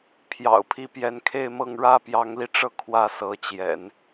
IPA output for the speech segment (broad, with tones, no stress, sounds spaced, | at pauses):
pʰ j ɑ̰˨˩ ʊ̯ pʰ i˧˥ p j ɛ˧˥ n kʰ e˥˧ ɪ̯ m ɤ˥˩ ŋ ɻ ä˥ p j ɑ˧˥ ŋ l i˧ ʈ͡ʂ ɤ˥˩ kʰ w ä˥ s ɤ˧˥ t͡ɕ j ɛ̰˨˩˦ n